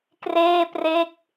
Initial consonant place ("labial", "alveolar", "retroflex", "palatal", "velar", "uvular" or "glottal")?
velar